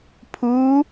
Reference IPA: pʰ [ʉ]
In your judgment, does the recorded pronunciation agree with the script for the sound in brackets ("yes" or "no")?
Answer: no